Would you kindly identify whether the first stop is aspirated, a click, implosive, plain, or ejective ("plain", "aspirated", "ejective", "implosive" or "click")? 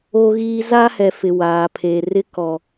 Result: aspirated